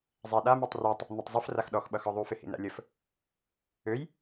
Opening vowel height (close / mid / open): open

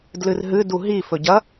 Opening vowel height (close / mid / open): close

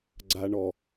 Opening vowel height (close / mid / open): open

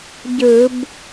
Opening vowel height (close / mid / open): close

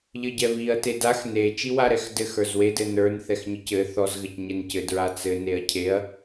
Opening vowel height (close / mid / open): mid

